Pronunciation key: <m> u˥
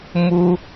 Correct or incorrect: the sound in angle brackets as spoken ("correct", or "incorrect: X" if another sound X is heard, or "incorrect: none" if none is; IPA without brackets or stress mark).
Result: correct